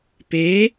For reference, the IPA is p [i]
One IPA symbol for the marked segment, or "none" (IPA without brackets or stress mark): e